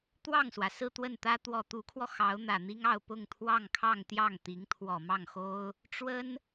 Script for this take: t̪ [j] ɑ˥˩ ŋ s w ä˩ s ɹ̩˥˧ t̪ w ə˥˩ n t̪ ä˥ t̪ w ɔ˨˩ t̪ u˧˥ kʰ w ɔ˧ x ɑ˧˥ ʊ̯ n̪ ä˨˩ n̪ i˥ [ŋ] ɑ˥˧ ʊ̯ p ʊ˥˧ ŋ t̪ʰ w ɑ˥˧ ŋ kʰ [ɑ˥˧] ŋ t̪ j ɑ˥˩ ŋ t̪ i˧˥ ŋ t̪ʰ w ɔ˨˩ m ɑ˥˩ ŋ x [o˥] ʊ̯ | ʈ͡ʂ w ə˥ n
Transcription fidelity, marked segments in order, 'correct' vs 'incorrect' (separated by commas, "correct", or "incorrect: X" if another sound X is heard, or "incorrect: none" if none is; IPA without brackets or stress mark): incorrect: w, correct, correct, correct